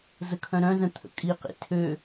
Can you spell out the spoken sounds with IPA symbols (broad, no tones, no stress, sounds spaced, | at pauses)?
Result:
z ə kʰ œ̃ ɾ œ̃ z ə̃ t̪ʰ ə̰ kʼ i q ḭ tʰ ø